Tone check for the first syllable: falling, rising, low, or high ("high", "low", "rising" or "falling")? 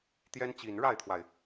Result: high